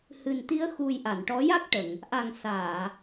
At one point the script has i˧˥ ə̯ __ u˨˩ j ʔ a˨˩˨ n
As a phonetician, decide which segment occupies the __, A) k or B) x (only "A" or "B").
B